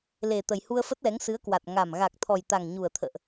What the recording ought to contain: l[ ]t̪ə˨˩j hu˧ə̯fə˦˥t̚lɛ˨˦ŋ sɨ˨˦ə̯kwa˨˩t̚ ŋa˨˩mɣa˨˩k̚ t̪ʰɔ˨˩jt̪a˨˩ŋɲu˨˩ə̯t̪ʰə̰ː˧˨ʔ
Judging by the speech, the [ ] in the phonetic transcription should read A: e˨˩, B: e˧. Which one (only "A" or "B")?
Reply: A